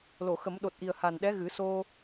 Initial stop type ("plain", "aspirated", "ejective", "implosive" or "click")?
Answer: implosive